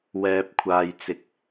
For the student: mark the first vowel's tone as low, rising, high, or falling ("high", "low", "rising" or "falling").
low